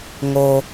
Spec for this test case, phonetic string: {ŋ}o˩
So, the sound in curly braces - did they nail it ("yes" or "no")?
yes